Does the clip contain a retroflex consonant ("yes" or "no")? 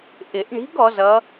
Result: yes